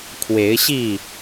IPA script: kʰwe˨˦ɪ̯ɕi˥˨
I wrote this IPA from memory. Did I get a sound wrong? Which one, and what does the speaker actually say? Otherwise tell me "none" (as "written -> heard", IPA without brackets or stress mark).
none